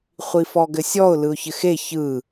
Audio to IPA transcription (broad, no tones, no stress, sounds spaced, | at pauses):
χʷ i f ɔ ɡ ɘ sʲ ɔ ʊ̯ l ɯ ʊ̯ ç ɘ x e ç ɯ